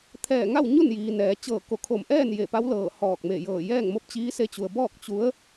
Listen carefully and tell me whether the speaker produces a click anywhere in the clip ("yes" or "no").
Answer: no